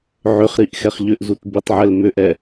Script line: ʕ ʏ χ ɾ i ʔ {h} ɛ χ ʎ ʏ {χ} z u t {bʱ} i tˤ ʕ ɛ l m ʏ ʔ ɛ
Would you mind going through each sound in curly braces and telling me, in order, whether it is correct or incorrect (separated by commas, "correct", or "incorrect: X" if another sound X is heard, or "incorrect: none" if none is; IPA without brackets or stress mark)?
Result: incorrect: x, incorrect: ʔ, incorrect: b